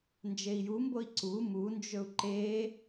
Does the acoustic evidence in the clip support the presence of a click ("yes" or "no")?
yes